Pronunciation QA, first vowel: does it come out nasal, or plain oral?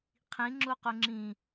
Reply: nasal